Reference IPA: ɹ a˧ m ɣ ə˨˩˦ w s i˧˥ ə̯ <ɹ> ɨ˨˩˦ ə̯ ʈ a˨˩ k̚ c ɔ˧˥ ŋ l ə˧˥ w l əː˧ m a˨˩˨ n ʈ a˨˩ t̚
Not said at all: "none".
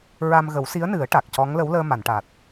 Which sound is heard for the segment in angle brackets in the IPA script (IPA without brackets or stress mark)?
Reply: n